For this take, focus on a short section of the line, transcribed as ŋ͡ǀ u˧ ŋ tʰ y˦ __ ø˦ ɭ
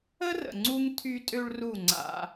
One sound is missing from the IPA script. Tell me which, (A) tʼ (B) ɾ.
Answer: A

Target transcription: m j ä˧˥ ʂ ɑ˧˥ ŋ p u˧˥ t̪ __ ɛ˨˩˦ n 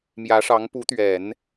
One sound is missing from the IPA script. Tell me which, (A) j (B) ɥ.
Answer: B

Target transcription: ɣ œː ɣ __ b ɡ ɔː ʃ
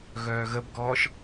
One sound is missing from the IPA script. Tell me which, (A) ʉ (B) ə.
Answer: B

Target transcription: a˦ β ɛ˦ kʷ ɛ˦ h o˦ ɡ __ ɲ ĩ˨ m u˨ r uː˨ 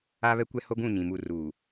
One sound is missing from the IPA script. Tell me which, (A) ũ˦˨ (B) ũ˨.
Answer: A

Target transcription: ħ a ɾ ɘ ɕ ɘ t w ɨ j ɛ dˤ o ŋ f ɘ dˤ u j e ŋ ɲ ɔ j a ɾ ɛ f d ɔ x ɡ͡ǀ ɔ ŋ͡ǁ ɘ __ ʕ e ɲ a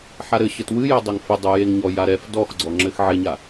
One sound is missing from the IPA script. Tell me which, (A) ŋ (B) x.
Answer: B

